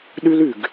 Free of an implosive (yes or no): no